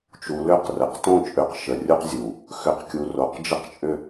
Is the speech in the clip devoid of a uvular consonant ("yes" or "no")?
no